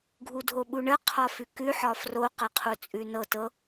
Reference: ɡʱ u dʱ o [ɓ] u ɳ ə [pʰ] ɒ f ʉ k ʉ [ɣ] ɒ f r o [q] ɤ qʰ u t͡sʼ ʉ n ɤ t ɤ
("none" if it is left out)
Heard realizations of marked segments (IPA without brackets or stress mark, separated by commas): ɓ, qʰ, ħ, q